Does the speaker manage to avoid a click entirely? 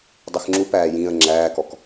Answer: no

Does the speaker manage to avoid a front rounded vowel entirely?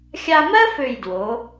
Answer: no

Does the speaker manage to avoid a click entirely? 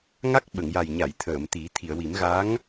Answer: yes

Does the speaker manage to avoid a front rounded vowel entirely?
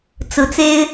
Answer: yes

